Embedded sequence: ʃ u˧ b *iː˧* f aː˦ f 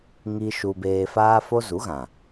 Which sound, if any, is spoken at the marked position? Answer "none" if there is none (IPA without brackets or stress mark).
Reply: eː˧